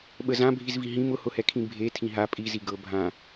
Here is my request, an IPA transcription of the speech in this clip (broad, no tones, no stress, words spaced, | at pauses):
ɓəzãbʱizvi ɦĩm ʊhʊhɛkʰĩ bʱe tʰĩɦa pʼizi ɡɤ bʱã